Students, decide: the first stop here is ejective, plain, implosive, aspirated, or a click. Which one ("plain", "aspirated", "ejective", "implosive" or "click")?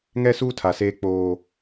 aspirated